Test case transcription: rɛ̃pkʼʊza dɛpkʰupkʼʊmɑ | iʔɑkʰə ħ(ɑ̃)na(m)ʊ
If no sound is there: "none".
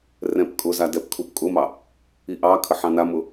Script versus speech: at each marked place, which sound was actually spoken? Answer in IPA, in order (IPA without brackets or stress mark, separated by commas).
ɑ̃, m